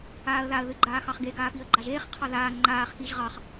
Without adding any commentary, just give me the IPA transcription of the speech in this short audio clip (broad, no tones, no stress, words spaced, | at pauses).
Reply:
aːə̯ðaə̯ ðɨɡ͡ǃaːxɑχɡe ɡaːpiə̯ɡ͡ǃaʒeːχ qʰɑðaː ŋ͡ǃaːχ xiːʒʁɑχ